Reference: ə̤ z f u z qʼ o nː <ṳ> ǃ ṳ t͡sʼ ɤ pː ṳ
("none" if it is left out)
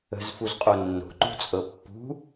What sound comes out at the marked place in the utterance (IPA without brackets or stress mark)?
o̤